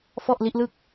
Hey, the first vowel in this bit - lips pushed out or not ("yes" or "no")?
yes